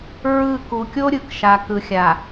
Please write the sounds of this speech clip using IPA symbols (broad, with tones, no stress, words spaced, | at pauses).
ɹɯ˦˨ ku˨kʲo˦ɾʲɯ˨k ʃa˨ kɯ˨xʲa˨